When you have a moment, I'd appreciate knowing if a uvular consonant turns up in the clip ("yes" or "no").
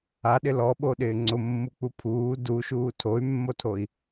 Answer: no